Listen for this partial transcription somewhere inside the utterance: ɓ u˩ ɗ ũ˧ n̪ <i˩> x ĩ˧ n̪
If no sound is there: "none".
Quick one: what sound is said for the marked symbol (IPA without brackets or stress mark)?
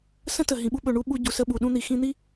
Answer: i˩